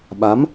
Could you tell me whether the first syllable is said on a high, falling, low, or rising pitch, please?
rising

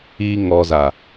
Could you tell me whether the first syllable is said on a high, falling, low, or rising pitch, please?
low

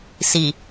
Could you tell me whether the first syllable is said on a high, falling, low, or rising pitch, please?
low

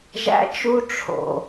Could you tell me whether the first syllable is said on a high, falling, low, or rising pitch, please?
high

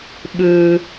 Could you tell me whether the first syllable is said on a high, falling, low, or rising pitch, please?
high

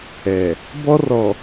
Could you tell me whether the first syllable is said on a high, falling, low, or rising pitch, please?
low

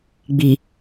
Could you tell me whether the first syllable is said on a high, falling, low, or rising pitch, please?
low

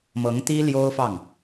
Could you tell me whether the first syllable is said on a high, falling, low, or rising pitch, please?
rising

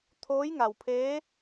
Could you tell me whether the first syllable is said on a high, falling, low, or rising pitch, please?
rising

